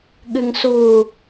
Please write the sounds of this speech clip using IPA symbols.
ɠ ɨ ŋ s u

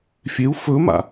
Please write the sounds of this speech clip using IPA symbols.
fʲ e u̯ f ɵ m a̰

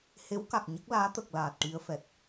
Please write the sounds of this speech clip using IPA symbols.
h e˧˥ w k a˨˩ k̚ ɲ ə˦˥ k̚ l aː˧˥ t̪ ə˨˩ k̚ l aː˨˩ t̚ ʈ i˧ ə̯ f ɛ˨˩ t̚

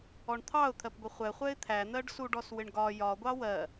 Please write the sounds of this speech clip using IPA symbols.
ɔ ɳ t̪ʰ ɑ ʊ̯ t̪ʰ ɜ p ɡʷ ɪ χʷ ɛ χʷ ɛ ɪ̯ t̪ʰ æ n̪ ɜ ɖ s u ɖ ɔ s w ɪ ɳ ɡ ɒ j ɒ ɡʷ ɑ w ɜ

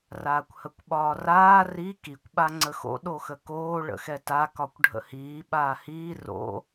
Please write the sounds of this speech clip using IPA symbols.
r aː kʷ h ə kʷ ɓ ɒː r aː r i k i kʷ ɓ a ŋ͡ǀ ə x o̰ ɗ o x ə k oː ɭ ə̰ x ɛ t a k ɒ kʷ ɖʱ ə̰ h iː ɓ aː h iː r o̰

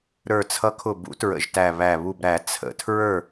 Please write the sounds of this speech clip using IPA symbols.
ɾ ə˞˨˩ t͡sʰ ʌ˨˥ kʰ ʊ˨˩ b ṵ˨˥ t ɹ ə̰˨˩ ʒ t æ˨˩ β æ˨˩ β u˨˩ b ɾ æ˨˩˦ t͡sʰ ə̰˨˩˦ tʰ ɹ ə˞˥˨

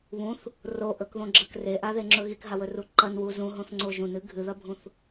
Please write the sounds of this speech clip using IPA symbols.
β ũ θ | r o ʔ ɵ k ð õ ɡ͡ǁ ɐ k r e ʔ a ð e ŋ͡ǁ ɵ ɣ i k ɦ a w ɵ r u ǃ ɐ n w u z ũ ɦ õ θ ŋ͡ǀ o ʒ ũ n ɨ ɡʱ ɨ ð ɐ bʱ ũ θ

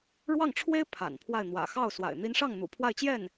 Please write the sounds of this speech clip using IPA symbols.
ɻ w ɑ˥˩ ŋ ʈ͡ʂʰ w e˥ ɪ̯ pʰ a̰˨˩ n pʰ w a˥˩ ɪ̯ n̪ w ä̰˨˩ x ɑ˥˩ ʊ̯ s w a̰˨˩ ɪ̯ n̪ i˧˥ n ʂ ɑ˥˩ ŋ n̪ ṵ˨˩ pʰ w a˥˧ ɪ̯ t͡ɕ j ɛ˥˩ n

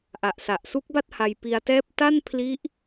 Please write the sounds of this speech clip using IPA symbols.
ʔ a˨˩ ʔ s a˨˩ ʔ s u˦˥ k̚ b a˥˩ t̚ h a˧ j p i˧ a̯ t ɛː˥˩ p̚ t a˥˩ n pʰ l i˦˥ ʔ

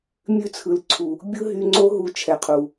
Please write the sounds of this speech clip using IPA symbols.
mʲ ʉ˦ t͡sʰ ɯ˨ l ǀʰ u˨ | bʲ ɯ˦ ɦ y˧ ŋ͡ǀ o˦ ɦ u˧ t͡ʃʰ ɛ˨ qʰ u˨

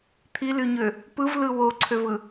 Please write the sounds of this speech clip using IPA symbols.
t̪ʰ i l y ɲ ø | p ɯ v l ɯ w o ǀʰ ø v ɯ

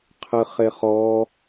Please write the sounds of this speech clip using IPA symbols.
qʰ ɨ χ e χ ɔ

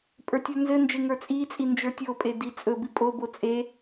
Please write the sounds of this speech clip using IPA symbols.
pʼ ə˞ tʲ ə˞ n z ɘ n d͡ʒ e ŋ ə˞ t͡sʼ i t͡sʼ i n d͡ʒ ə˞ tʲ o pʼ e d i t͡sʼ ɵ b i pʼ o b o t͡sʼ e

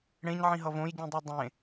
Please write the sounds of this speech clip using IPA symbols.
ɽ ẽ ɲ ʕ ĩ ɦ ʌ v õ j ɟ ĩ dˤ i dˤ ẽ

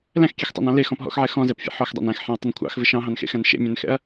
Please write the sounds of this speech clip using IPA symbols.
l æ̃ x kʲ e x tˤ ɑ̰ n ɑ̃ l e x ɔ̃ p ɦ ɔ̰ x ʕ ɛ x ɔ̃ z ɛ p fʲ ḛ ħ ɔ x dˤ æ̰ n æ̃ x ħ ɛ̃ ɐ̯ tˤ ʏ n kʷʰ ɑ̰ x v ɪ ʃ ɑ̃ ɦ ɑ̃ n x ḛ x æ̃ n ʃ ḛ mʲ æ̃ n x ɛ̰ ɐ̯

